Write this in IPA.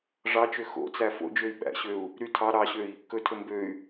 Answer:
ʐ ɑ t͡ʃ ø x o̰ t͡s æ f o̰ d͡ʒ ø i̯ ɓ æ̰ ɕ ø u̯ | ɾ y tʰ ɑ ɾ ɑ ɕ ø i̯ | k ɵ tʰ ɵ m b ø y̯

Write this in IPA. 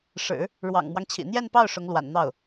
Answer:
ʂ ɻ̩˨˩˦ | ɻ w ɑ̰˨˩ ŋ m w ɑ˦ ŋ t͡ɕʰ ḭ˨˩ n̪ j ɛ˥˧ n p ɑ˥˩ ʊ̯ ʂ ʊ˧˥ ŋ l w a̰˨˩ n n̪ ɑ˥˩ ʊ̯

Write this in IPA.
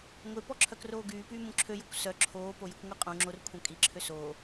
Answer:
ŋʷ e p ɔ ǁʰ œ k r oː ɡ yː p yː m ũ ǁʰ ø j o kʷ s œ ǁʰ oː p o j ə kʷ ŋʷ i qʼ ũ ŋ͡ǁ o r kʷʰ œ̃ kʼ i ǁʰ ø s oː

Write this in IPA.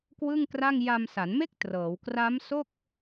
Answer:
k w ɯ˥˩ ŋ k r a˥˩ ŋ j a˧ m s a˩˦ n m e˥˩ k̚ t r ɤː˩˦ w k r a˦˥ m s o˥˩ k̚

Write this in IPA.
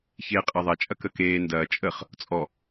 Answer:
ç eː qʼ əː ðˤ ɐ t͡ʃʼ ɐ k ə k eː n d ɐː t͡ʃʼ ə χ | t͡sʼ ɔ

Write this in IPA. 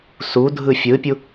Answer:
s u dʱ ɯ fʲ ɯː pʲ u

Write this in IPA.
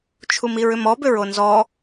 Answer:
t͡ʃʰ u m i ɹ ʏ m ɔ b ʏ ɹ o n z ɔ

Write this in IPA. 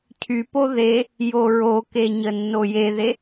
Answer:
cʰ y p o ð e | j o ɹ o k e ɲ ə nː o j e ð e

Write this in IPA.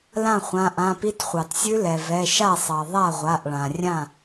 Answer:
l ã˥˩ χʷ ã˩˧˩ ʔ ã˩˧˩ p i˦˥ t χʷ ɑ˩ t sʲ ʉ˦˥ l ɛ˩ v ɛ˩˧˩ ʃ a˥˩ sˤ ɑ˩ ðˤ a˥˩ ʁʷ a˩˧˩ ʔ ɭ ã˩ rʲ ã˥˩

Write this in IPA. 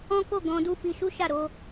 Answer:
ɔ̃˦ k o˦˨ ɡ ɔ̃˧ d u˦ f i˧ ʃ u˦ ʃ a˦˨ ɾ o˧

